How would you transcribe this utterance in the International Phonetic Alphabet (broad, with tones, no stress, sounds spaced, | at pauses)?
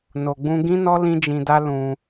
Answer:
n o˨ ɡ͡b ũ˧ ɡ ĩ˦ n ɔ˦ l ĩ˦ d͡ʒ ĩ˧ d a˦ l ũ˧